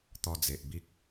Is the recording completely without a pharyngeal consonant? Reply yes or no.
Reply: yes